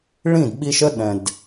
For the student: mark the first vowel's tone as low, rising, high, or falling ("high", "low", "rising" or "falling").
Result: falling